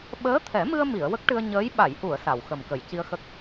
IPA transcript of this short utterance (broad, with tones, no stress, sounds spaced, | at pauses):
ɓ əː˧˥ t̪ʰ ɛ˨˩˦ m ɨ˧ ə̯ m i˨˩˨ ə̯ w ə˦˥ k̚ ʈ ɨ˧ ə̯ ɲ əː˧˥ j ɓ a˨˩˨ j ʔ u˨˩˨ ə̯ s a˨˩˨ w x ə˨˩ m k ə˨˩˨ j c i˧ ə̯ x ə˦˥ k̚